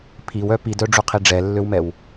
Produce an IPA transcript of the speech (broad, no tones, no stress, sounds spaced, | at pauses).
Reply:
pʰ i w œ p i d œ ɖ͡ʐ u qʰ i ɖ͡ʐ ɛ lː ø w m ɛ w